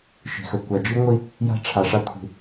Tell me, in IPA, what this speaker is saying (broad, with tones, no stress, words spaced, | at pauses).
ʃi̤˨xɵ˨ kʷa˨d͡ʒi˦ ŋʷi˦ | ja̤˦ʈ͡ʂʰa˨ʂa˦ kʷʰi̤˨